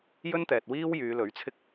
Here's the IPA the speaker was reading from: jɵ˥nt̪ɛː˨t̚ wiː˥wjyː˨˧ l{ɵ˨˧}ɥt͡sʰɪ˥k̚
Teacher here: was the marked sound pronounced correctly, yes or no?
no